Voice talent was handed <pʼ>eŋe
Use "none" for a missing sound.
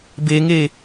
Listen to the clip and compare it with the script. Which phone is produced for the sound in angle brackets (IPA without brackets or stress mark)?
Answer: b